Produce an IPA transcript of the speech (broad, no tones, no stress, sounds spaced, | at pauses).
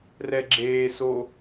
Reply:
r ɛ ɡ͡ǁ eː s o